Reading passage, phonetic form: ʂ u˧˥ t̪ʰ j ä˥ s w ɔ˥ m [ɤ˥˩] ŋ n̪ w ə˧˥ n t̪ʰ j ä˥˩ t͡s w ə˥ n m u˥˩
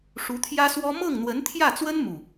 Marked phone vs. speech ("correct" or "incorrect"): correct